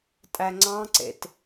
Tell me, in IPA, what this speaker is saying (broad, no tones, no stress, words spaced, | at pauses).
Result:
tʼæŋ͡ǀɑ̃ǀḛt